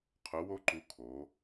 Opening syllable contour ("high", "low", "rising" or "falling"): rising